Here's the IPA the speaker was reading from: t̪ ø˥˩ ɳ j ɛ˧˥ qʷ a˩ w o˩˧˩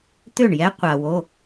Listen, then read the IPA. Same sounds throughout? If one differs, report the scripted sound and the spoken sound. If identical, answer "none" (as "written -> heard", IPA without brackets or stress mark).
none